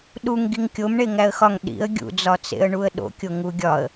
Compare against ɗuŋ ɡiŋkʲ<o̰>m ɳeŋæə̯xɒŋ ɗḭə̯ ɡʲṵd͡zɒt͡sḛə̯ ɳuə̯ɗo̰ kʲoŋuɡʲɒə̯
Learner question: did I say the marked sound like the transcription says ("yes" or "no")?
no